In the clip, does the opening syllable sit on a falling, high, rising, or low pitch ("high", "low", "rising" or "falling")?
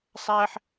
high